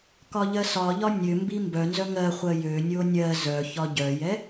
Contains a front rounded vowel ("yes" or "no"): yes